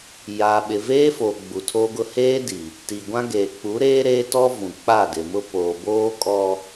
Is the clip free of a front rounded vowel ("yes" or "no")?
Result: yes